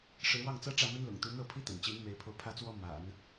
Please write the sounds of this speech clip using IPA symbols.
ʂɻ̩˧˥wɑ˥˩ŋt͡sɤ˥ ʈ͡ʂä˥˩mə˥nlʊ̰˨˩ŋt̪u˧˥ n̪ɤ˥˩pʰi˥t̪ə̰˨˩nt͡ɕi˧˥n me˧˥ɪ̯pʰo˧ʊ̯pʰä˥˩t͡swɔ˥ ma̰˨˩˦n

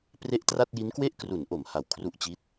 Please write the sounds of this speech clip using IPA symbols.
pre˦˥ʔtra˥˩t̚ji˦˥nkwe˥˩ʔ kru˩˦nʔo˩˦m ha˨˩wkʰru˦˥ʔt͡ɕi˦˥t̚

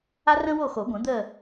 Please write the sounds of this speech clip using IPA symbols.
a˥rə̃˥wo˥˨xo˨˩˦ ɡʷə̃˨˩˦ d̪ə˥˨

